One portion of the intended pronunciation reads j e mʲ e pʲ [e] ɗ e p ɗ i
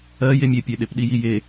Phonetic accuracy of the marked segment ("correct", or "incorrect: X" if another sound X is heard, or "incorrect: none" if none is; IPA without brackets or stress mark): correct